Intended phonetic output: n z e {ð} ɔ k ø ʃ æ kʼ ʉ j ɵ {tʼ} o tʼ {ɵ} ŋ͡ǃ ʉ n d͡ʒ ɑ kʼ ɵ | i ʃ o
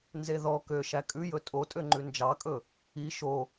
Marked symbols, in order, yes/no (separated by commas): yes, yes, no